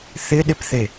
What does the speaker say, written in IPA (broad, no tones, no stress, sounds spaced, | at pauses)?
θ ɪ ɗ ɪ p θ e